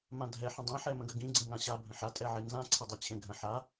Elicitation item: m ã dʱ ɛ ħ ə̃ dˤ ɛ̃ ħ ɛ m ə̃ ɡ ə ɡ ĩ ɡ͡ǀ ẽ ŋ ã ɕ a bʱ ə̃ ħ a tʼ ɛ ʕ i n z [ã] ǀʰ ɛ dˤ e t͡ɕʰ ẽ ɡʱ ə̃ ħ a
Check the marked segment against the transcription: correct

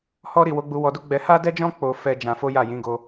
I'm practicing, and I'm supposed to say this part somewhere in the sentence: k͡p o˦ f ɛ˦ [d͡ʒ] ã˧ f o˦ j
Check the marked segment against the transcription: correct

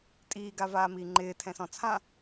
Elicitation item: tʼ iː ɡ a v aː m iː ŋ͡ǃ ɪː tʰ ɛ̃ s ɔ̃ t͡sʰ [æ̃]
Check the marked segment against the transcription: incorrect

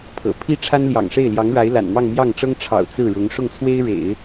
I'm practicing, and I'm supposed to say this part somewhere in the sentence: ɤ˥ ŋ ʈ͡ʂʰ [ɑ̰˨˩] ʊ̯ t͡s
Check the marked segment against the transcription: correct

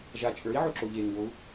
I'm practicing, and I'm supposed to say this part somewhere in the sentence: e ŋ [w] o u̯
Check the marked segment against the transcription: correct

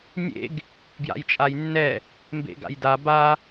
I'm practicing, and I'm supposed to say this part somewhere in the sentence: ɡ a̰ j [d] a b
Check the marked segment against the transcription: correct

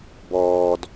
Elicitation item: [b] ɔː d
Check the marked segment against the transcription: correct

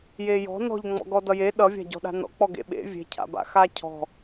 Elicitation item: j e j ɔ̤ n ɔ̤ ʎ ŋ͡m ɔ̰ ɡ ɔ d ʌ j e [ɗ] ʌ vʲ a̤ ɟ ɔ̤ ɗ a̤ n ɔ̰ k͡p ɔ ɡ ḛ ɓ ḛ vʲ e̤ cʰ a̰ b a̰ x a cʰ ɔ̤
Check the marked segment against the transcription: correct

